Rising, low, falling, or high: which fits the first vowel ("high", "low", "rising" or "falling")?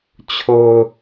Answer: low